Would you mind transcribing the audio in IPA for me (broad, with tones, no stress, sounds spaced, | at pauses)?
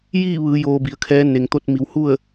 j iː˥˨ ʋ ɯː˩˧ j oː˧ b i˩˧ ə̯ kʰ ɛː˧˥ n e˩ ŋ t̪ o˧ t̚ m i˩˧ w h u˥˨ ə̯